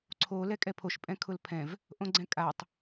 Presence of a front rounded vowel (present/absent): absent